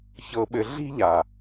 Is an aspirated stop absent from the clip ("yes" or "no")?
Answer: yes